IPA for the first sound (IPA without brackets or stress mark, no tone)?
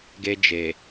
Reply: ɡ